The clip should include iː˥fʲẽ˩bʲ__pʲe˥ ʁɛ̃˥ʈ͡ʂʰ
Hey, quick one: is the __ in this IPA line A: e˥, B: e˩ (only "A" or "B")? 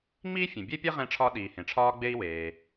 A